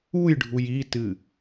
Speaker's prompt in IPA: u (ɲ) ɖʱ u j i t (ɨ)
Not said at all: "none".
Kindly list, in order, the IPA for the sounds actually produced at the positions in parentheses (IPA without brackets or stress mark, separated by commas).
j, ɨ